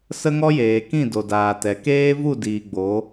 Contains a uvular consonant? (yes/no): no